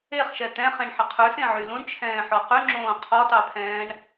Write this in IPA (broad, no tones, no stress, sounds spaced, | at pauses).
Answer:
e χ ʃ ɛ t̪ ɛ̃ χ ẽ ɳ ħ ə qʰ ʉ s ẽ ʕ y l ũ ɳ t͡ʃʰ ɛ̃ː ħ ɔ q ʉ ŋ͡ǁ õː qʰ ɔ t ɑ pʰ ɛ̃ː ɳ